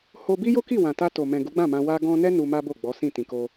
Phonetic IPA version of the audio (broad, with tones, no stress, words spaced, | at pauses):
ho˧bi˦jo˦ki˦˨ wã˨ta˧ to˨mɛ̃˨ ɡu˨˦ɡ͡bã˦˨mã˧ wa˧ɡɔ̃˧nɛ˦ nu˧ma˦bo˦˨ɡ͡bɔ˨˦ sĩ˦˨tĩ˨ko˧